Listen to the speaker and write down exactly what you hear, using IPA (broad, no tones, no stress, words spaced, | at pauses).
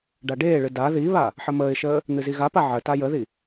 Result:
ɖaɖeːɭɨ da ðiβa | ħəməːɪ̯ʃəː | n̪ɨziɣapa ʕəta jəði